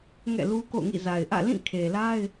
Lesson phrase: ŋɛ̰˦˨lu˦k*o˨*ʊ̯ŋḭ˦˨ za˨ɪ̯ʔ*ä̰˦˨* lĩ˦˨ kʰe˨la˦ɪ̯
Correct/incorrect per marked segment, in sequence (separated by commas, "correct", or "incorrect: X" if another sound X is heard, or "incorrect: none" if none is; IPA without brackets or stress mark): incorrect: o̰˦˨, correct